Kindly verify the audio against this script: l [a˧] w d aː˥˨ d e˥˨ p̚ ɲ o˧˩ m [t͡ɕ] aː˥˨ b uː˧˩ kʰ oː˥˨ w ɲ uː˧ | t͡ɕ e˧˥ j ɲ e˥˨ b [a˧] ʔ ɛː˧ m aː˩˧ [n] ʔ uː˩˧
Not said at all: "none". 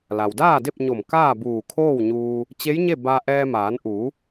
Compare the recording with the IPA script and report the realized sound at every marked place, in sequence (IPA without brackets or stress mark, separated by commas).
a˩, k, a˧, n